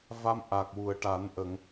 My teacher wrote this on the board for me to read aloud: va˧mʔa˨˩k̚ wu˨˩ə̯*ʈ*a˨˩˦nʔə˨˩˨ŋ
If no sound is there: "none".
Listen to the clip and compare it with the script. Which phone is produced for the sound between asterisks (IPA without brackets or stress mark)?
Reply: ʈ